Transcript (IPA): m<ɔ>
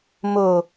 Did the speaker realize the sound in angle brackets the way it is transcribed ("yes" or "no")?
no